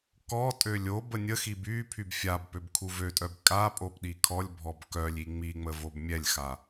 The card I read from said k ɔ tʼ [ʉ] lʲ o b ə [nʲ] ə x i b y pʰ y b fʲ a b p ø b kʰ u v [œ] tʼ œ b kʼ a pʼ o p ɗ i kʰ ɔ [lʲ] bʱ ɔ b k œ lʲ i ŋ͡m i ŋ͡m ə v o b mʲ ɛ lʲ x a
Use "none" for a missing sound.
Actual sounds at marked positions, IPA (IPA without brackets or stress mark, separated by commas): ø, nʲ, ø, lʲ